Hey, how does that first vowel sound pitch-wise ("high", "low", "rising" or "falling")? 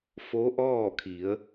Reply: rising